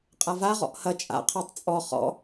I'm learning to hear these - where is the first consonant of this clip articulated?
uvula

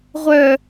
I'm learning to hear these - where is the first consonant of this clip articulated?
uvula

